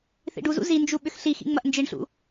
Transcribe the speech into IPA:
θ ḭ ɖ u z ṵ z i n d͡ʒ u ɓ ʏ x ɬ i x ḭ ŋ͡m ɐ ʔ n d͡ʒ i ɳ ɬ ṵ

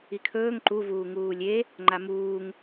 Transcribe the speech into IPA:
i kʰ ɵː ŋ ǃ u v uː ŋ uː lʲ e | ŋ͡ǃ a m uː ŋ

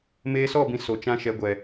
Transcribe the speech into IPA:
m eː˧ s ɔ˦˨ b ĩ˨ s o˨ t͡ʃ ã˦ ʃ ɛ˨˦ ɡʷ ɛ˨

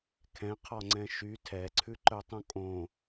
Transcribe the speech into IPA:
kʰ ɛ̃ qʰ ɔ ŋ͡ǀ ɛ̃ ʃ y tʰ ɛ ǀʰ ʉ ǃ œ tˤ ũ kʼ õ

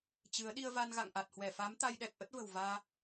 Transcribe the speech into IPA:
t͡ɕ ɨ˨˦ ə̯ ɗ i˧ ə̯ v a˧ n ɣ a̰˧˨ ŋ ʔ a˨˩ t̚ h w ɛ˧˩ f a˨˦ m t̪ a˧ j ɗ ɛ˨˩ k̚ ʔ ə˦˥ t̚ v ə̤˨˩ w v aː˧

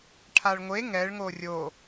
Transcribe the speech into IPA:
ʈʰ a ɭ ŋʷ e ŋ ɛ ɭ ŋ o rʲ o

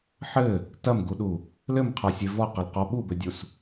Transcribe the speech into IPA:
ħ ɘ | t ɐ m ɡ u ɗ u | l ɘ m qʰ a sʲ e v ɔ q ɐ l q ɔ ɓ u b ɘ dʲ u s

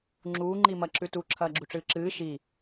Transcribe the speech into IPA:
ŋ͡ǁ uː ŋ͡ǃ i m ɐ ǁ ʉ t u ǁʰ ɐː ɡ͡ǁ u ʈ͡ʂ ɨː ǁ ɨː ʃ i

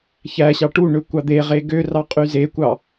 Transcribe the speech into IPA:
ç æ ɕ ɑ ʈ u ɳ ø kʷ ɑ d̪ e ʁ e ɡ ø r ɑ qʼ y z e kʷ ɑ

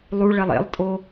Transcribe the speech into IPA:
lˠ u ɭ ɛ lˠ ḛ lˠ tʼ o

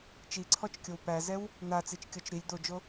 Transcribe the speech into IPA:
t͡ʃ i ǀʰ ɔ t͡ʃ kʲ o w p æ z ɛ w | n̪ a t͡s i t͡ʃ kʲ ɔ t͡ʃ ɾ i lʲ d̪ o d͡ʒ o

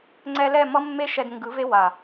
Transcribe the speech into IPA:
ŋ͡ǀ ɛ˧ l ɛ˦˨ m ʌ˦ mː e˦ ʃ ɛ˧ d ŋ ɡ ɯ˨˦ v e˦ w a˨

